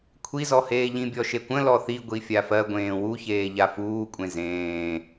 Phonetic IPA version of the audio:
kʷʰ i z ɔ h eː ʎ ĩ bʲ ɔ ʃ e kʷ ə̃ l ɔ θ i ɡʷ i fʲ a f ɜ ɡʷ ẽː w u ç eː ʎ a f uː kʷʼ ẽ z ẽː

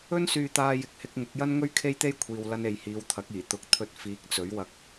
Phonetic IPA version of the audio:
ɵ˥ n s yː˧ t̪ aː˧ j ɪ˨˥ k̚ h ɪ˧ k̚ ŋ ʊ˨˥ k̚ j ɐ˥ n ŋ ɵ˥ ɥ kʰ e˥ j t̪ e˥ j kʷʰ iː˧ w l ɐ˥ n e˧ j h iː˨˧ w t̪ʰ ɐ˨˥ k̚ iː˨˩ t̪ ʊ˨˥ k̚ t̪ʰ ɵ˧ t̚ f iː˨˥ k̚ t͡s ɵ˨˥ ɥ w ɐ˧ k̚

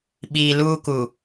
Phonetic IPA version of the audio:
ɓ iː˨ l uː˦ k u˨

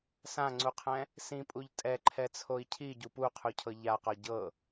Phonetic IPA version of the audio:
s ã ŋ͡ǀ u qʰ ɛ̃ | s ĩ pʼ u ʎ tʼ ɛ ǃʰ ɛ t͡sʰ o i̯ cʰ i ɟ u p u qʰ u cʰ ɤ ʎ a q ɒ ɟ ɤ

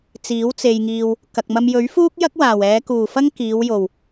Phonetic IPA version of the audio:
t͡s iː˨˥ w t͡s e˨ j ŋ iː˨ w | k ɐ˨ k̚ m ɐ˧ m j ɵ˨˥ ɥ f uː˥ k̚ j ɐ˥ k̚ w aː˨˩ w ɛː˨˧ k uː˨˩ f ɐ˥ ŋ k iː˨˧ w j o˨˩ w

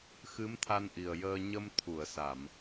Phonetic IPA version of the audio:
x ɨ˧˥ m t̪ʰ a˧ n ʔ i˨˩ ə̯ j əː˧ ɲ ə˧ m t̪ʰ u˨˩˨ ə̯ s a˨˩˨ m

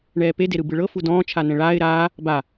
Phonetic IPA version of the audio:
ɳ ɛː p e d e ɾ ɯ b ɯ ɭ ɤ f u d ɔ̃ː t͡ʃʰ a n ɛ̃ ɭ aː ɪ̯ ɾ aː | b a

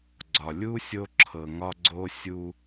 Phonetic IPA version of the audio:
ɡ͡ǀ ɒ˨ lʲ u˦ sʲ o˦ ǁʰ ɤ˨ ŋ ɒ˦ ɡ͡ǀ o˦ sʲ u˦

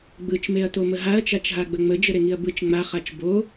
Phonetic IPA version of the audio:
ɡ͡b ɯ t͡ʃ m e ɐ̯ t o m ə ɦ a ɐ̯ t͡ʃ a t͡ʃ ɦ a ɡ͡b ə ŋ͡m ə d͡ʒ ə ɾ e ŋ i ɐ̯ b ɯ t͡ʃ ŋ͡m a χ a t͡ʃ b o

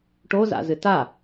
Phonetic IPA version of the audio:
ʈ o z a̰ z ɨ t a

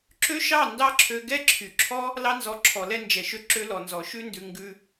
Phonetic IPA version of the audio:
ǁ ø˦ ʃ ɑ˦˨ n d ɑ˦ ǁʰ ø˧ ɡ ɛ˦ ǁʰ y˨ ǁʰ ɔ˦ | l ɑ˧ n z ɔ˨˦ ǁʰ ɔ˨ l ɛ˧ n d͡ʒ ɛ˨ ʃ ø˧ ǁ ø˧ l ɔ˨ n z ɔ˨ ʃ ʉ˧ n d ʉ˨ ŋ ɡ ʉ˧

